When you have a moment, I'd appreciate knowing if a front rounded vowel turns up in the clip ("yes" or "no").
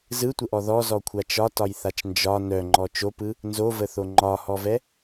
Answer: yes